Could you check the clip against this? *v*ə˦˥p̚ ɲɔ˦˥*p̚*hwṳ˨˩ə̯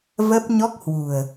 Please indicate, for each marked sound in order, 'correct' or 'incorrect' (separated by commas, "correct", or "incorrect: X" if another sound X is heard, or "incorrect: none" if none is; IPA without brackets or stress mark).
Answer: correct, incorrect: k̚